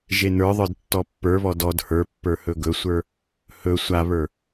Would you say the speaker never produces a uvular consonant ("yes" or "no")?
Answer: yes